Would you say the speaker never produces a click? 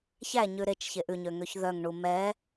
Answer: yes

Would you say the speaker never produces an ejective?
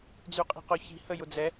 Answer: no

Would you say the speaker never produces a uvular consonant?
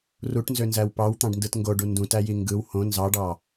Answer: yes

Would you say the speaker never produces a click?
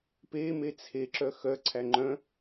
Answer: no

